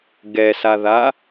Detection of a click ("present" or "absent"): absent